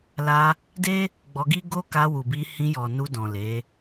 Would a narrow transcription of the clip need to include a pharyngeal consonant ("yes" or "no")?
no